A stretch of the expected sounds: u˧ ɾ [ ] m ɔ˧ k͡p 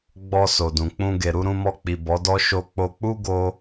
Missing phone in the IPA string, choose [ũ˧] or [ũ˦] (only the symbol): ũ˧